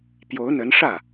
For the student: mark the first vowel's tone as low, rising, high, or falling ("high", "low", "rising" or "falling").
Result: rising